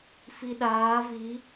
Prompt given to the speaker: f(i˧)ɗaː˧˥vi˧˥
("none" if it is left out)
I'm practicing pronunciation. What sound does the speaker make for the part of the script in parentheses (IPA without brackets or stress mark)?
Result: i˧